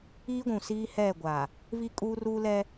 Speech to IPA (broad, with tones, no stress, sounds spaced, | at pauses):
iː˦ ɡʷ ũ˨ s iː˦ h ɛ˦˨ ɡʷ a˨ | v i˦ kʼ uː˦ r uː˦ l ɛ˦